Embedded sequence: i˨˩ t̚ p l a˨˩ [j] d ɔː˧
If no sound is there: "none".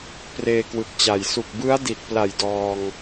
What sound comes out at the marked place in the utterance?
j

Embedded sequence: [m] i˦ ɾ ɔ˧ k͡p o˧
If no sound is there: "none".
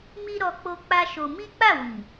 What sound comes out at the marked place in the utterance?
m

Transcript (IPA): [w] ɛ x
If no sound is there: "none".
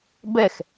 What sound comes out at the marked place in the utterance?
b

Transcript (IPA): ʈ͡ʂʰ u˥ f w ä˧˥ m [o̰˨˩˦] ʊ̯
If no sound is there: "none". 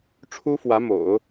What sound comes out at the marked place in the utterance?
o̰˨˩˦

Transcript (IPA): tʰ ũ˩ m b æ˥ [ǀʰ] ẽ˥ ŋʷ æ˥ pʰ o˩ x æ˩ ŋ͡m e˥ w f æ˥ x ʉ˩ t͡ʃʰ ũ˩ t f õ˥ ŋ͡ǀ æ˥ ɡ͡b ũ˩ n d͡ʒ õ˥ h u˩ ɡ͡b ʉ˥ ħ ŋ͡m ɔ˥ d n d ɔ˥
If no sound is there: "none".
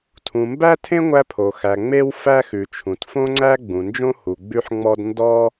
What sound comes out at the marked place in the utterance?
tʰ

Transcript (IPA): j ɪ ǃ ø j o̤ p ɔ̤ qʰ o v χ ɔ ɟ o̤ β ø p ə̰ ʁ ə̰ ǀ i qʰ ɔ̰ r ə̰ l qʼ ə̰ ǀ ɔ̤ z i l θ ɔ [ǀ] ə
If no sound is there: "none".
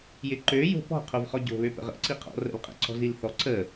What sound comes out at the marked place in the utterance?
ǀ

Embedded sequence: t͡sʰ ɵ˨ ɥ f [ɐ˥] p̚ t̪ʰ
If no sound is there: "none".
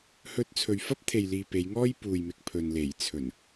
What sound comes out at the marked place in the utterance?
ɐ˥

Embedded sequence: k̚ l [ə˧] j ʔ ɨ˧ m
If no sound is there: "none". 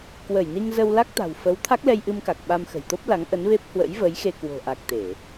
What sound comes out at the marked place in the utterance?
ɛ˧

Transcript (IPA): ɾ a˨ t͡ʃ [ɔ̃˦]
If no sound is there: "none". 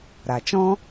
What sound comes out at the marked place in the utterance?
ɔ̃˦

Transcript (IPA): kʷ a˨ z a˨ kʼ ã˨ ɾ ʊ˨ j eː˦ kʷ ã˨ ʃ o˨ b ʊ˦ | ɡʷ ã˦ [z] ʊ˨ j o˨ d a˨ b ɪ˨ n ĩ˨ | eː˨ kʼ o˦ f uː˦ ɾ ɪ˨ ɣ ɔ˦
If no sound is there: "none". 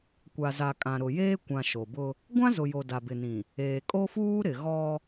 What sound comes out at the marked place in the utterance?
z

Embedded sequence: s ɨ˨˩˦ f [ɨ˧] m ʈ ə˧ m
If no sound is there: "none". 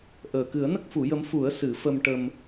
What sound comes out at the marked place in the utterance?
ə˧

